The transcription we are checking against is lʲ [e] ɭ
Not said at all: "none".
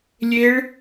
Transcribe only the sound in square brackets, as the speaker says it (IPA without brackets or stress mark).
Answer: e